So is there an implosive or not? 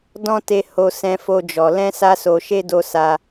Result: no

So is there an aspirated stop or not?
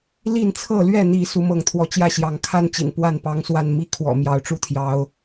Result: yes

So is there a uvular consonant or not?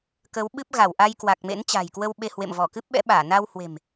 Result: no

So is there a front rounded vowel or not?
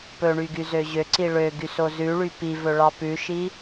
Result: yes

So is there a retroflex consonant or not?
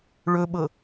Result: yes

